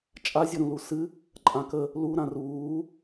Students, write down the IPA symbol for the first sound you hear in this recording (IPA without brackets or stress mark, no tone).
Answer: t͡ʃʼ